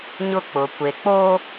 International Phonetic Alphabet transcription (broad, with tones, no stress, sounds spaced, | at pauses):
ɲ ʊ˦ k͡p ʊ˨ kʷ e˨ k͡p o˦